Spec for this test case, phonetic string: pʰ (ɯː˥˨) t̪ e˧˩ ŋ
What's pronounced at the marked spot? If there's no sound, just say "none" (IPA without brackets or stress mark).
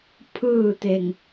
ɯː˥˨